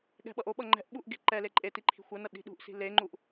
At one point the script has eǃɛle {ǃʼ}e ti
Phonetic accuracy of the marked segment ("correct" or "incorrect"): correct